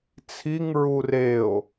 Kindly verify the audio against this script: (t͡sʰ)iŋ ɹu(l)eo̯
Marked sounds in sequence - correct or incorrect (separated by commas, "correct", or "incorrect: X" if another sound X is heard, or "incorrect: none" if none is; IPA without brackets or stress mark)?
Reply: correct, incorrect: r